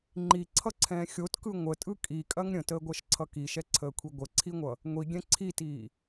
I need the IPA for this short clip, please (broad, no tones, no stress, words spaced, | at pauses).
ŋ͡ǃiǀʰʌǀʰɛ̃ː xʲotkɯ ŋʷətʼɯ kʼikʼɐŋ ɾʲə̃təːɡʷɜʃǀʰʌ kiʃɛǀʰəːkʷʰi ɡʷəǀʰiŋʷʌ | ŋʷiɡʲɛ̃ ǀʰitiː